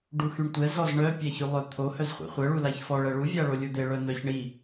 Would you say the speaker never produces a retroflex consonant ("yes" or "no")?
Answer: no